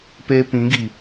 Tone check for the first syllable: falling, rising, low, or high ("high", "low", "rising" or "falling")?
high